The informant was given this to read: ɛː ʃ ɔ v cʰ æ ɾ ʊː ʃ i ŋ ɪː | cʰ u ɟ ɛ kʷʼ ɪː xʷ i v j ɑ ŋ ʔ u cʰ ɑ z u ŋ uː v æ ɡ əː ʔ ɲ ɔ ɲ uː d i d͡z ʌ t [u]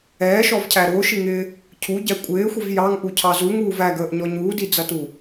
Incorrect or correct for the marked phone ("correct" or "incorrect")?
correct